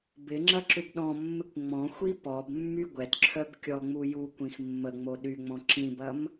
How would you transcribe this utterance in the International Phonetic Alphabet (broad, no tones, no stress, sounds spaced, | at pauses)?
b ɪ ŋ͡ǁ ɐ ǁ ʏ b ɗ ɔ̃ mː ɪ kʷ ŋ͡m ɔ̃ xʷ i p ɔ b mː y ɡʷ ɛ t ǁʰ œ b kʲ ɔ ŋ͡m u j u kʷ ĩ x mː ə ŋ͡m o ɗ y ŋ͡m ɔ̃ ǁ ĩ b ɐ m